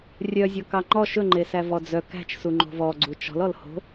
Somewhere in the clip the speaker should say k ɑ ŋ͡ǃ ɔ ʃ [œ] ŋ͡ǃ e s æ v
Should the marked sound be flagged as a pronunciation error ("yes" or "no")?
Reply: yes